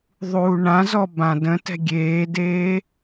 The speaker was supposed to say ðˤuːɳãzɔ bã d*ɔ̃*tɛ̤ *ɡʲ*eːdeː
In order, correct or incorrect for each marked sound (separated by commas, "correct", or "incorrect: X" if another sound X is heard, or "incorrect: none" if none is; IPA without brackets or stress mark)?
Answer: incorrect: ə̃, correct